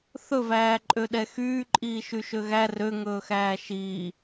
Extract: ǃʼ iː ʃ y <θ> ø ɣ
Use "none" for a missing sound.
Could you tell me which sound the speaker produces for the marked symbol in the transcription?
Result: ʃ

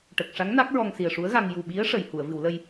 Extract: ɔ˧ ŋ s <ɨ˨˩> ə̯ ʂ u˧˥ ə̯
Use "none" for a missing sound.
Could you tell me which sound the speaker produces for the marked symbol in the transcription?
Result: i˨˩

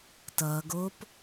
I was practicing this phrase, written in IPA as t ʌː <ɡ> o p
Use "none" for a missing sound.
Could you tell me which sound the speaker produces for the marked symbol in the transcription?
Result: ɡ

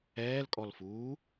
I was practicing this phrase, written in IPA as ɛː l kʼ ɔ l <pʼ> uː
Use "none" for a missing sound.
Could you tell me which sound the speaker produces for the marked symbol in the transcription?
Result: f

